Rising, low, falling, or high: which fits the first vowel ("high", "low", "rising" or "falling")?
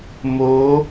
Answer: rising